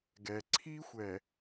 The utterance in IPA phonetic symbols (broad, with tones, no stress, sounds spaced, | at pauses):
ɡ ɛ˨ ǀʰ i˦ xʷ ɛ˨